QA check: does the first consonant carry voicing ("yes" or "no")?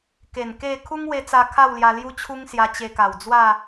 no